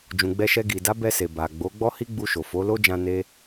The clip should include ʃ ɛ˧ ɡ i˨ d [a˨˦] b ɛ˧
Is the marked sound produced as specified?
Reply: yes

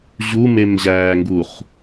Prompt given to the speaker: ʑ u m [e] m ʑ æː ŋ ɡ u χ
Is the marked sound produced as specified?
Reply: yes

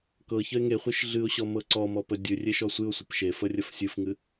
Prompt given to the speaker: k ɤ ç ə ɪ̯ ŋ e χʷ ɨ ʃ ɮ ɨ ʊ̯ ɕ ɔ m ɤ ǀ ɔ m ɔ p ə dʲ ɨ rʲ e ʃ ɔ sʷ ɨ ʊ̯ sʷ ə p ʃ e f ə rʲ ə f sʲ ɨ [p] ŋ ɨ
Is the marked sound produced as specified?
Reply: no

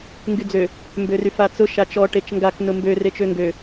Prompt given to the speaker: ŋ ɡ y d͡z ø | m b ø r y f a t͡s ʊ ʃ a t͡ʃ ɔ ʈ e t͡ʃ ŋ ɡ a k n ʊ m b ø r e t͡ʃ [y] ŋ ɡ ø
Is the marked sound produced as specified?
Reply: no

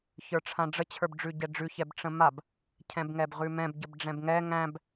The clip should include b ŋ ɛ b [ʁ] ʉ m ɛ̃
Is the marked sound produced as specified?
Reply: yes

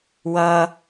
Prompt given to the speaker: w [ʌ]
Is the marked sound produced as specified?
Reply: yes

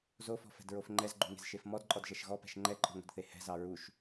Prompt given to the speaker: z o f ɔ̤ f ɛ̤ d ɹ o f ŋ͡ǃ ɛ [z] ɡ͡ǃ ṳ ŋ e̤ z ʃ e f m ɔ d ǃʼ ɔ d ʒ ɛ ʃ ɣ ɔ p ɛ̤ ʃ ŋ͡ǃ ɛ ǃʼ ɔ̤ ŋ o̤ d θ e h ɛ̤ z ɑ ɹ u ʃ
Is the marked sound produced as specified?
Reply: yes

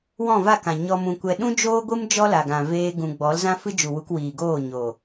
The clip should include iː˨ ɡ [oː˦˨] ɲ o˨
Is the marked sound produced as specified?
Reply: yes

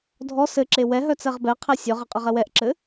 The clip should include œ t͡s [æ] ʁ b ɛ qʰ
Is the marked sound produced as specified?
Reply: no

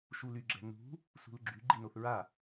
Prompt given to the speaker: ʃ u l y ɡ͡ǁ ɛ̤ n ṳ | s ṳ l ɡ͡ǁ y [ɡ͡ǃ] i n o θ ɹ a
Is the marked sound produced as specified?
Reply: yes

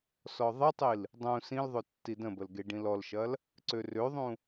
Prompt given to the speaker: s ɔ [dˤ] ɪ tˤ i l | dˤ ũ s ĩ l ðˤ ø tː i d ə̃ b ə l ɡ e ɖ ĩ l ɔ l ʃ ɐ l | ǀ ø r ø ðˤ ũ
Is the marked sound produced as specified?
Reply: no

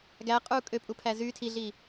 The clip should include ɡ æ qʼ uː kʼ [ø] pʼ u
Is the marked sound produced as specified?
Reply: yes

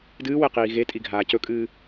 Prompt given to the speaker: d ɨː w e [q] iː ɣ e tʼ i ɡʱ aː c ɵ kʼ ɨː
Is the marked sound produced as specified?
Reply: yes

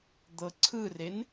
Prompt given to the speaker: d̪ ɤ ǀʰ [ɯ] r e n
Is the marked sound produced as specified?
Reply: yes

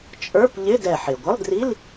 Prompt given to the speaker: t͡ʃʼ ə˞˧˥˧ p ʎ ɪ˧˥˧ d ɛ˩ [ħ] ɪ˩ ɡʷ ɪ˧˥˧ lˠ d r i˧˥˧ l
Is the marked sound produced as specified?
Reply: yes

